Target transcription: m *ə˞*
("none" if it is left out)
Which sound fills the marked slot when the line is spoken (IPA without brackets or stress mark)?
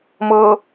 ɤ